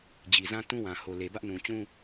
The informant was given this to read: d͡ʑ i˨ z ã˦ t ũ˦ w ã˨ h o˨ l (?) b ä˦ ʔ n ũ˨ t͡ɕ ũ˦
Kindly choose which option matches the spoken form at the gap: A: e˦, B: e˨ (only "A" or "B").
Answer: B